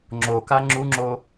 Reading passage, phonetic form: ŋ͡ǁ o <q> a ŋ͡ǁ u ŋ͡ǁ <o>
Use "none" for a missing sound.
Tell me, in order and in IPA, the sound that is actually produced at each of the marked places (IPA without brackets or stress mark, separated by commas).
k, o